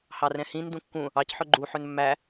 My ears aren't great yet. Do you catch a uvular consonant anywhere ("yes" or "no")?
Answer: no